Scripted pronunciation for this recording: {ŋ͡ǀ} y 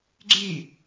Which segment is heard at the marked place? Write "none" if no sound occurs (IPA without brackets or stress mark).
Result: ɡ͡ǀ